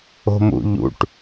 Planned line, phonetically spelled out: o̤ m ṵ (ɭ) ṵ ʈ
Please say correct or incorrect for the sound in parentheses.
incorrect